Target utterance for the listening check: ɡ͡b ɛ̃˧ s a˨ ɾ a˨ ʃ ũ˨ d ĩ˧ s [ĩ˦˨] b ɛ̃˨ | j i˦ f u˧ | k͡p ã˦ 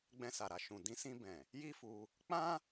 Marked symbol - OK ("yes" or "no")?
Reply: no